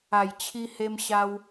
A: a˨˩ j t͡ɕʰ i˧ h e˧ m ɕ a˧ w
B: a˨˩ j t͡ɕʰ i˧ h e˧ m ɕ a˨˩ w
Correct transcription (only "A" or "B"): A